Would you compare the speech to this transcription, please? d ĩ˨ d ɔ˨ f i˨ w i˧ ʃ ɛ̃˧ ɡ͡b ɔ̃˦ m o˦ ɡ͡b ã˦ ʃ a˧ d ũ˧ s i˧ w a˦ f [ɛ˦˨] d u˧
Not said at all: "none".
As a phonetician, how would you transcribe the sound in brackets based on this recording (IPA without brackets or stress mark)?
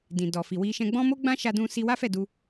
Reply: ɛ˦˨